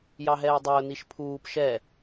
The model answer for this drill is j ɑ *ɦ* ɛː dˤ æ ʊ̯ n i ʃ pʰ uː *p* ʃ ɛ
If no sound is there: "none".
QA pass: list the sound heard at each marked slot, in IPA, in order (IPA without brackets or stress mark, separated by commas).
ɦ, p